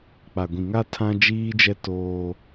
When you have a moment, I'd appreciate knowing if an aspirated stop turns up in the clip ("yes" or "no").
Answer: yes